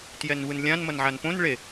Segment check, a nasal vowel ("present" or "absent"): present